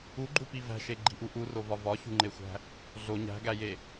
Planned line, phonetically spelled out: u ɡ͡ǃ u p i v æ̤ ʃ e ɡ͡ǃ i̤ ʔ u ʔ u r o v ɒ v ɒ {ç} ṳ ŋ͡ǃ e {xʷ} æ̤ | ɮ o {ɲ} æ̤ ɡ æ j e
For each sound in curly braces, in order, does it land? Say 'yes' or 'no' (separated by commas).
yes, yes, yes